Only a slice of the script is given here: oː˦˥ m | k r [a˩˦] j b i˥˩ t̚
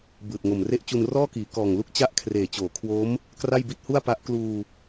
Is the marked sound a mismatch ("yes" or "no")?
yes